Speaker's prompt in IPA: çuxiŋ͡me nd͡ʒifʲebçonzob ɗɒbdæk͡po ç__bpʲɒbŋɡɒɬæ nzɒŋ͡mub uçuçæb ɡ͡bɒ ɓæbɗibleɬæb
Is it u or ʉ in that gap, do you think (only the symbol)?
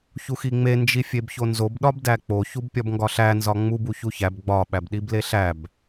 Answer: u